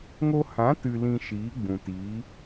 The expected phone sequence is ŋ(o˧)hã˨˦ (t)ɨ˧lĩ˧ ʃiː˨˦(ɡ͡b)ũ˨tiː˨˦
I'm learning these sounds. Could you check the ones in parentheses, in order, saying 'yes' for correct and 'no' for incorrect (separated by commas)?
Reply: yes, yes, yes